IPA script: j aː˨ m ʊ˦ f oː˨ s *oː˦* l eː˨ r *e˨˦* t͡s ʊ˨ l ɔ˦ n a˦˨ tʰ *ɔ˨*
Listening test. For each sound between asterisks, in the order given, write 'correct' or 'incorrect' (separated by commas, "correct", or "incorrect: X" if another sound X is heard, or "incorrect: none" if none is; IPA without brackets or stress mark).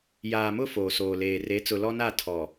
incorrect: oː˨, correct, correct